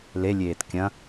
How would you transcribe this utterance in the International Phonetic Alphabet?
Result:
l e lʲ eː t kʲ ɐ̃

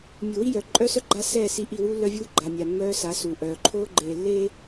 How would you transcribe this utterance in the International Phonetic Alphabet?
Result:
mʲ u˨ w i˦ j œː˨ ǃʼ œː˦ s œ˦ ɡ͡ǃ a˦ s ɛː˦˨ s i˦˨ ʔ i˦˨ w uː˦ lː œ˦ vʲ uː˦ ɡ͡ǃ a˨ mʲ a˨ mː œː˦ s a˨˦ s uː˨ ʔ œː˨ ǃʰ oː˦ ɡ͡ǃ eː˨ lː eː˦

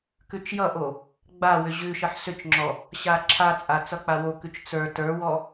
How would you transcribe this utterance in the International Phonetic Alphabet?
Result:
k ʉ t͡ʃ j ʌ ʔ o | ɡ͡b a w ʏ ʑ ʉ ʃ ʌ ħ s ʏ t͡ʃ ŋ͡ǁ ɔ | ɕ a ǁʰ a t͡sʼ a t͡s ʌ k͡p a w o k ʉ t͡ʃ t͡s ə˞ t ə˞ w ɔ

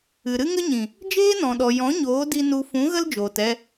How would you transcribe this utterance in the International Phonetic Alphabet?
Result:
ɨ˨ ɾ ɨ˦ ŋ ə˦ ɲ ĩ˨ | d͡ʒ eː˦ n ɔ̃˨ ɗ ɔ˨ j ɔ̃˨˦ ɲ oː˨˦ d i˧ n u˧ f ũ˨˦ ɣ ə˦ l d͡ʒ oː˨ t ɛ˧

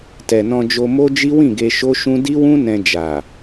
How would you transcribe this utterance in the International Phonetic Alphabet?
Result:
t ɛ˨ n ɔ̃˧ d͡ʒ o˧ m o˦ d͡ʒ i˦ w ĩ˦˨ ɡ e˧ ʃ o˦ ʃ ũ˦ d i˦ w ũ˦ n ɛ̃˧ d͡ʒ a˨

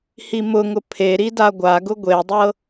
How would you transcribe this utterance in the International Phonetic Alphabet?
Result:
h i m ʊ ŋ ʊ pʰ e ɾ i d a ɡʷ a ɡ ʊ ɡʷ e dˤ ɤ

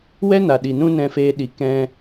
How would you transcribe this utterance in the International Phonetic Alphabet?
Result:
w ɛ˦ n a˨ ɗ i˨ n ũ˦ n ɛ̃˧ f eː˧ ɗ i˨ k ɛ̃˧

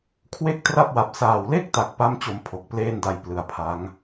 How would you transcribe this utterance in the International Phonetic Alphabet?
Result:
kʰ w e˥˩ k̚ t r a˥˩ p̚ w a˨˩ p̚ s aː˨˩ w l e˥˩ k̚ t a˨˩ k̚ p a˥˩ m t͡ɕ o˧ m pʰ o˨˩ k̚ p l eː˥˩ n d a˧ j p l ɯ˨˩ a̯ pʰ a˦˥ ŋ

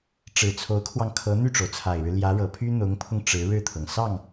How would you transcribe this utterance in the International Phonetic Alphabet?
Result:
ʈ͡ʂ ɻ̩˨˩ t͡sʰ o˧˥ ʊ̯ kʰ w ɑ˧ ŋ kʰ ɤ˧˥ n̪ y˥˩ ʈ͡ʂ o˩ ʊ̯ t͡sʰ a˨˩ ɪ̯ ɻ ɻ̩˦ l j ä˧˥ ɻ ɤ˨˩ pʰ y˥ n̪ ʊ˧˥ ŋ pʰ ʊ˧ ŋ ʈ͡ʂ ɻ̩˧˥ ɻ ɻ̩˥˩ t̪ʰ ɤ˩ ŋ s ɑ˥˩ ŋ

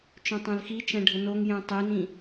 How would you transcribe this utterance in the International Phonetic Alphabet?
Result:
t͡ʃ œ̃ tˤ œ̃ l x i t͡ʃ ɛ̃ ɖʱ ə n o ŋ j ɛ̃ tˤ i n ĩ

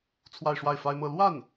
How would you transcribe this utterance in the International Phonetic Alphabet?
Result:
t͡sʰ w a˥˧ ɪ̯ ʂ w a˥˩ ɪ̯ f a˥ ɪ̯ m ɤ˥˧ l w a˥˩ n

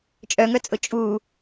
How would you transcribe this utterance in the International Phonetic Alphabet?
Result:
t͡ʃʼ œ ŋ œ t͡sʼ ʊ t͡ʃʼ u

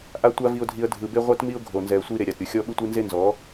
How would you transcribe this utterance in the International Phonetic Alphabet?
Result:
ʔ a˦ tʷ a˦ v i˧ ʊ̯ dʱ i˧ ə̯ dʱ ɯ˨ b e˦ ʁʷ ɛ˦ t m i˦ ʊ̯ ɡʱ o˨ n z ɛ˨ ə̯ sʷ i˧ ɾ e˨ ɾʲ a˨ t ɾʲ u˨ xʲ ɔ˦ ɓ ɯ˦ tʷ i˦ n z e˦ n z ɔ˨˦

